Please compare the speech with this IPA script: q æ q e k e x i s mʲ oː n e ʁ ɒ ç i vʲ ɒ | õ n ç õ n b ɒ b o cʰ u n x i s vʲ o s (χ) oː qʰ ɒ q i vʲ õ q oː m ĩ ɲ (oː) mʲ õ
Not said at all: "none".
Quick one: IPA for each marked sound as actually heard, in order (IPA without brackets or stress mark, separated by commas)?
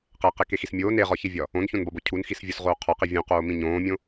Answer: ʁ, õː